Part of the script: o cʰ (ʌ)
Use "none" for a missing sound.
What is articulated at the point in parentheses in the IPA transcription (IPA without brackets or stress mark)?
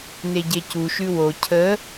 ə